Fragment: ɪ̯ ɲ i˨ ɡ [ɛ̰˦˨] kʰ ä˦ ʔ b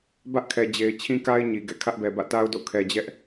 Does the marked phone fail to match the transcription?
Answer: no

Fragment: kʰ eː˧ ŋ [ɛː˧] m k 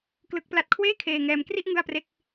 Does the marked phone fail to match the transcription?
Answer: no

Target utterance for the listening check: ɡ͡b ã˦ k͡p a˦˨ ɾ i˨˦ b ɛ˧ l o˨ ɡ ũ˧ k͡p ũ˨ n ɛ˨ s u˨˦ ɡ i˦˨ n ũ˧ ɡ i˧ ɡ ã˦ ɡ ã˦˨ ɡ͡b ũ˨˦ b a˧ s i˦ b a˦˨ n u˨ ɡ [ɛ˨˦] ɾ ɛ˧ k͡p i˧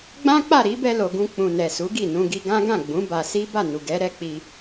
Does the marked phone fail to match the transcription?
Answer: no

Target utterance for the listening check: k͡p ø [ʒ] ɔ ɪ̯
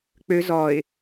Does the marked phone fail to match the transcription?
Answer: yes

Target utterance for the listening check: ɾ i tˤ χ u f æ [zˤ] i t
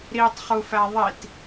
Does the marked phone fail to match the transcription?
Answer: yes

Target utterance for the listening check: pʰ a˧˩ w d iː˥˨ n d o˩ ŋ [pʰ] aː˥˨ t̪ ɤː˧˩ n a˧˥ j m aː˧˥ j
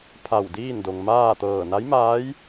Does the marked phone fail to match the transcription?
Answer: yes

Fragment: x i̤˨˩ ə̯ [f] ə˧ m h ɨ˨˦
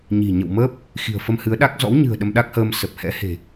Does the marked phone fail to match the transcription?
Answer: no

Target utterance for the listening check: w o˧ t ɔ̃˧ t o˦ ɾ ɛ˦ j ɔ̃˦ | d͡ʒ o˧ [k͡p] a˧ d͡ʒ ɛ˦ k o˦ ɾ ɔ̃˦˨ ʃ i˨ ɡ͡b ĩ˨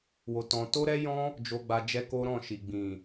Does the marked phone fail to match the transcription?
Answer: yes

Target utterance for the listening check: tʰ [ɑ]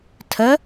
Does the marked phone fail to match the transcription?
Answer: yes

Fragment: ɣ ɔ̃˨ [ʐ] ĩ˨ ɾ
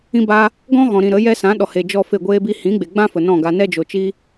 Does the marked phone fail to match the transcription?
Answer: yes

